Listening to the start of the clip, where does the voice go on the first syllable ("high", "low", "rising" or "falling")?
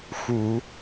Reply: low